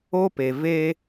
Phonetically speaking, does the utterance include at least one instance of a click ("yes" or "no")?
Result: no